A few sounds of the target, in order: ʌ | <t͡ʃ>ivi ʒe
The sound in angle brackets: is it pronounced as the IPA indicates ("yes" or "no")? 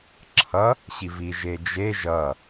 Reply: no